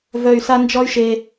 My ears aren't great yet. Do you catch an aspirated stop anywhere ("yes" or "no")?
no